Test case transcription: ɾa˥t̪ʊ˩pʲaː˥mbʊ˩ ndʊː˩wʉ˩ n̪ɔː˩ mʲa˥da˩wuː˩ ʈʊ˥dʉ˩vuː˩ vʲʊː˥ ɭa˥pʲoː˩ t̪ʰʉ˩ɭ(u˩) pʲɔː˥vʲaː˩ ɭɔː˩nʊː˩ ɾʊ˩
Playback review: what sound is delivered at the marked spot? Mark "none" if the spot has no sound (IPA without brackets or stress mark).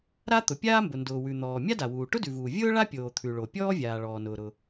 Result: o˩